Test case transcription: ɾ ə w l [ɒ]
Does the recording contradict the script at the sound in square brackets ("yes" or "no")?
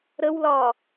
yes